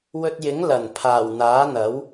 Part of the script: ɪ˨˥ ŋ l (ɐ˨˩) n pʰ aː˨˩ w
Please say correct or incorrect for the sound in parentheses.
correct